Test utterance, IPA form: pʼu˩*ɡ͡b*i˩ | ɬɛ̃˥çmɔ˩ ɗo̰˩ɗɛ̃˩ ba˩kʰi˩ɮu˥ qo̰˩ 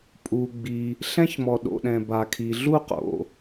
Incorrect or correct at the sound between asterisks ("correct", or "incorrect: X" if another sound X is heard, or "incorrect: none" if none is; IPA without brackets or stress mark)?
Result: correct